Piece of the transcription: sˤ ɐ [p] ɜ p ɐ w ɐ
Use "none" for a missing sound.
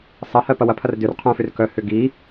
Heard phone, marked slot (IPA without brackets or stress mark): h